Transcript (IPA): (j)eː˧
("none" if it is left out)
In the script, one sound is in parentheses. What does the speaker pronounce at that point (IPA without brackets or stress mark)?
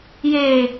j